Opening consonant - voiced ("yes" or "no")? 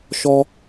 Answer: no